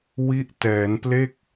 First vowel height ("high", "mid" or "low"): high